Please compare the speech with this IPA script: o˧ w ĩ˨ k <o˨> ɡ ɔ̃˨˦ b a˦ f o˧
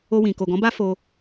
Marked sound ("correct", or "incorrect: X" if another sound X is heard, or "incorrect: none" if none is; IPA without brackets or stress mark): correct